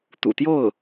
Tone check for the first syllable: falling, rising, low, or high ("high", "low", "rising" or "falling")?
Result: low